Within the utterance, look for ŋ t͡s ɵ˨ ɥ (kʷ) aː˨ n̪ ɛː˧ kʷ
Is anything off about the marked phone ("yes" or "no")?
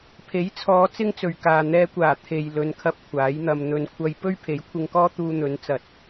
yes